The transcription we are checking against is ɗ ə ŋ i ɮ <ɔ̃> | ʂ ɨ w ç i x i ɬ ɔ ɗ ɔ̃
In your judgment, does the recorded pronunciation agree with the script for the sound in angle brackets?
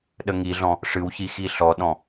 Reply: yes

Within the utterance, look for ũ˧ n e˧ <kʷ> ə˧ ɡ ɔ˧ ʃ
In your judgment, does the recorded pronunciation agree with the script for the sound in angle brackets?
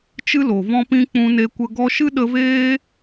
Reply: yes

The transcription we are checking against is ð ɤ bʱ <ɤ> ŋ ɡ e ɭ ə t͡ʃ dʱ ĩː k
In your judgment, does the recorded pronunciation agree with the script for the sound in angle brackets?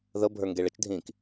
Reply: no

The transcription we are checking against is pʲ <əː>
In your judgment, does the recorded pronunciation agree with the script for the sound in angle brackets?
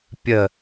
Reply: no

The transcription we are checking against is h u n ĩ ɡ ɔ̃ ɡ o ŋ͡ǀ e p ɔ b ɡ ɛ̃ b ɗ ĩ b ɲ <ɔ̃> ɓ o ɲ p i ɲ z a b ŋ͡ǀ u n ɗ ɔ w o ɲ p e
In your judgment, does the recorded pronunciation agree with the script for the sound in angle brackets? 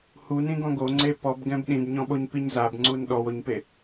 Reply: yes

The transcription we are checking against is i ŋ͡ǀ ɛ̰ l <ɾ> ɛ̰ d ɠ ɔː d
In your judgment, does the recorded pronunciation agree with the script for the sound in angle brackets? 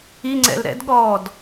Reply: yes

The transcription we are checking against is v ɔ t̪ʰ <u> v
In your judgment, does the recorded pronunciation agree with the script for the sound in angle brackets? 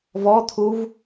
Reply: yes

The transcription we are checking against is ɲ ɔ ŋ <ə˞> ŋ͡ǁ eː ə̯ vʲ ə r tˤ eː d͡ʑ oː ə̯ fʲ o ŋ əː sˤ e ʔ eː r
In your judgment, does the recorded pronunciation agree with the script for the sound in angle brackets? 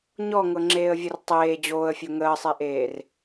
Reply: no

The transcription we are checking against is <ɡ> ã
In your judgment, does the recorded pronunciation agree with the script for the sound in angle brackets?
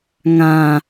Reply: no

